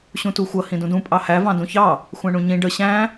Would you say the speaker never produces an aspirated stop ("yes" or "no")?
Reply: yes